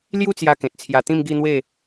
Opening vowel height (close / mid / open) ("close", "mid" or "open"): close